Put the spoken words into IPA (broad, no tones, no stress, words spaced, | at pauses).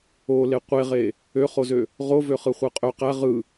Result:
ole qʷeʁe | øχozø | ʁo vøχɯχʷɯqʼø qæ ʁɯ